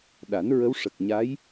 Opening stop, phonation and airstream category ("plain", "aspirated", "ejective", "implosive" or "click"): implosive